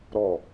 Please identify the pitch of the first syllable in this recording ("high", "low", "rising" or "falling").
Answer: falling